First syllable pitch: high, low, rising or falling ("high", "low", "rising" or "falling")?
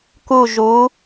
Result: falling